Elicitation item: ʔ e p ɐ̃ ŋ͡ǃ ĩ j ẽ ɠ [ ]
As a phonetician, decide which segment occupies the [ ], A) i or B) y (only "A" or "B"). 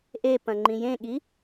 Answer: A